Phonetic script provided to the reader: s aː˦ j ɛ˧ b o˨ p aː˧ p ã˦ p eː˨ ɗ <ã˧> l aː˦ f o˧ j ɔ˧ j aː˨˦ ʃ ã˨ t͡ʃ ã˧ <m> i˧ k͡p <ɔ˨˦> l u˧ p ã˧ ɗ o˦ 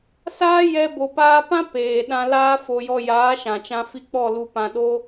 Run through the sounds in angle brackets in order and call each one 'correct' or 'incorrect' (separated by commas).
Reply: correct, incorrect, incorrect